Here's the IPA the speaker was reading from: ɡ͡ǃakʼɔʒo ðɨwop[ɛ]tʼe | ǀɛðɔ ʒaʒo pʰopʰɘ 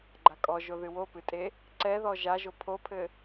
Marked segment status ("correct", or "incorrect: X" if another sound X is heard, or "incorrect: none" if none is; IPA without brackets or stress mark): incorrect: ɨ